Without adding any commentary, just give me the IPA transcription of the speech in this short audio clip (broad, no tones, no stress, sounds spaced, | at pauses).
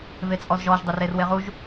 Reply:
v e t͡sʼ ɔ z ʒ ɔ ʒ dˤ e r e r w e ʁ u ʒ